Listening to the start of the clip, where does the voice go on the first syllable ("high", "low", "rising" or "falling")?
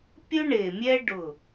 high